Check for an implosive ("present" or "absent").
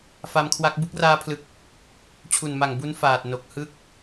absent